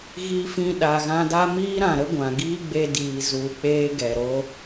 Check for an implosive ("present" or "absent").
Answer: present